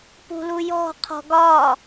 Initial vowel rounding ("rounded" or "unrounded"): rounded